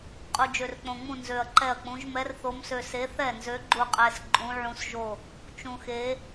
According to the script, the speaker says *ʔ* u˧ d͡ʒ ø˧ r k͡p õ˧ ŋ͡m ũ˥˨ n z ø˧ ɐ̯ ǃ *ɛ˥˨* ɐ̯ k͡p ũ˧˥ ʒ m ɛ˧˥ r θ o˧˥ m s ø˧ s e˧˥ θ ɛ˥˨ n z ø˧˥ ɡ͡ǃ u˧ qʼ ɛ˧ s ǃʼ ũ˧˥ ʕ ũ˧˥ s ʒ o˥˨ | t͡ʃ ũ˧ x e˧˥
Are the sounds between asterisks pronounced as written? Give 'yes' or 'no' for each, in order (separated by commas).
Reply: no, yes